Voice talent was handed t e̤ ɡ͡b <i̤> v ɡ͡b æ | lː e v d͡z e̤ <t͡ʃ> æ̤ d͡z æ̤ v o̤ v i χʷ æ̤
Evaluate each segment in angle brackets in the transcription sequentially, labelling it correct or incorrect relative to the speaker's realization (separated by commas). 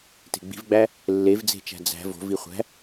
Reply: correct, correct